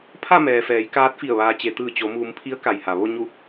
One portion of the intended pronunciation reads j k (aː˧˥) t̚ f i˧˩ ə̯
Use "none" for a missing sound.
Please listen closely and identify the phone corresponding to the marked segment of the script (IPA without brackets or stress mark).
aː˧˥